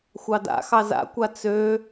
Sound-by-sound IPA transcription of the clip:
xʷɑda̰xɑ za̰kʷa t͡sø

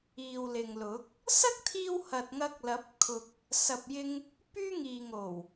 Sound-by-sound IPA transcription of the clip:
iː˨wlɪ˨ŋlʊ˨˥k̚ | sɐ˥k̚t̪ʰiː˧w hɐ˨t̚ ŋɐ˧k̚lɐ˨˥p̚kʰʊ˨k̚ | sɐ˨p̚jɪ˧ŋ | pyː˥ ŋiː˨ŋo˨˩w

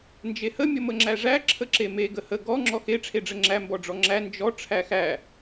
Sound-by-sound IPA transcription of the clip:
nd͡ʒehə mʲəməŋ͡ǁæʐæ ǁʰəǁeme ɡəhə ɡɔ ŋ͡ǁɔxe ʈ͡ʂʰeɖ͡ʐəŋ͡ǁæ mbɔɖ͡ʐɔŋ͡ǁæ nd͡ʒɔ ʈ͡ʂʰæxæ

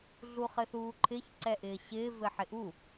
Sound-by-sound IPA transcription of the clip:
ɮuχɘθuːǃʰɪç ǀɛʔɪːɕɪː vɘħɪʔu

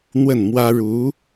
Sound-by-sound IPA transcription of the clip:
n̪wə˥˩nmwä˥ ɻu˧˥

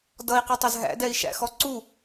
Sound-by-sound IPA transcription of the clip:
dʌi̯qətˤəz ɦæ̰dɛi̯ʃæ̰xɔ ǀu

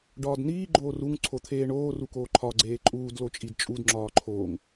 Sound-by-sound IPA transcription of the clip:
ɖɒːdniː ɡ͡ǃoːruŋ ǀʰot̪ʰeːɳoː rukoːǃʰɒ ɡ͡ǀeːǃʼuːd lot͡ʃʼidt͡ʃʼud ŋ͡ǁɒːǃʰoːŋ

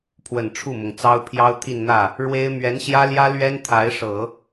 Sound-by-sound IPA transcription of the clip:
pʰwə˨˩n ʈ͡ʂʰu˥˩mʊ˩ŋt͡sɑ˥ʊ̯pʰjɑ˥ʊ̯ t̪ʰi˥˧nn̪ä˥˩ | ɻwe˥ɪ̯ mɥɛ˧˥nɕjä˥ljä˥ lɥɛ˥nt̪ʰa˧˥ɪ̯ ʂɤ˨˩˦

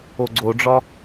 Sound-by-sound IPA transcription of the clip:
oɡ͡ǀoɖ͡ʐɒ

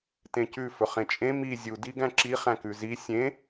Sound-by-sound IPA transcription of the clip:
tẽcʉ fɵχẽt͡ʃʼẽ mi zʲu diɡæ̃ǁi χæ̃kʉzi sʲẽ

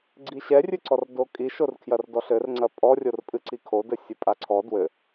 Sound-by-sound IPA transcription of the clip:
ɡ͡ǀiɕɛrʲɨǀɔr dokʼiʃor kʰjɐrdɔɬɘrŋ͡ǀɐ pʼɔrʲorpʼɨ ǀikʰo dɘsʲɨpʼaǀʰɔ dwɘ

